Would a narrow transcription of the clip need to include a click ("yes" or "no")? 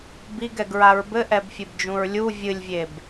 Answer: no